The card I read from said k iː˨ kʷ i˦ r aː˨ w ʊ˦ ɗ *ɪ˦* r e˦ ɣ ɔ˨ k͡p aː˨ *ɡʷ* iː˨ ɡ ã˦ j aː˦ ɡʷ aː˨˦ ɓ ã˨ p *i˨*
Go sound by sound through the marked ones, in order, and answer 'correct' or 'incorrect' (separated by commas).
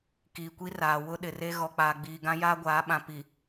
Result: incorrect, incorrect, correct